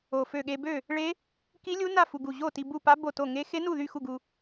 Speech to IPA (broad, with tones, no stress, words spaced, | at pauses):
o˧˩fø˥˨ ɠe˧bø˥˨ | ɭe˦˥ | ki˦˥lʲu˦˥na˥˨ fu˧ɡu˧˩ ʑo˥˨ ti˧bu˥˨pa˦˥ bo˥˨to˥˨ ŋe˦˥ xe˦˥nu˥˨ ðy˥˨xu˥˨ ɡu˧